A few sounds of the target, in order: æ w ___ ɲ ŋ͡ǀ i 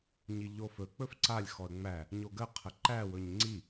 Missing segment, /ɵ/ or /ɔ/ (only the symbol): ɵ